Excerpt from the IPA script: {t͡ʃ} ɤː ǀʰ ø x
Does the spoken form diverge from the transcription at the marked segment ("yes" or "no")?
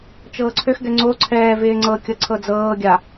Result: no